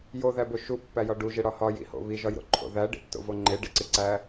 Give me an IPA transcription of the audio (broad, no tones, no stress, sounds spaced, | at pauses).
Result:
j o ð æ b o ʃ u pː æ j ɒ ɖ u ʒ e ɽ ɒ h ɒ j ḭ h o̰ β i ʒ ɒ j ɾ o̰ ǃʰ o̰ ð æ ɖ ḭ tː o̰ v o ŋ͡ǃ e ɖ ḭ ǀ i ǀ æ